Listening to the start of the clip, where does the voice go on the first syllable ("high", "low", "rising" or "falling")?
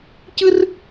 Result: high